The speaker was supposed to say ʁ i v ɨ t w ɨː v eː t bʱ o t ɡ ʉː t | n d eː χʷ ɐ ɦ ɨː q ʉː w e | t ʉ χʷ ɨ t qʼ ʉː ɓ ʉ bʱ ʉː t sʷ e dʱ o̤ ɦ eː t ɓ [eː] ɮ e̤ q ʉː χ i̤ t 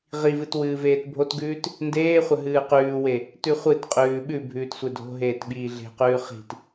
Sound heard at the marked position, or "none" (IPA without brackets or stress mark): iː